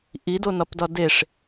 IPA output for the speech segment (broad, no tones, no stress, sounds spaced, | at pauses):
ʔ i d o n ɒ p d ɒ d e ʂ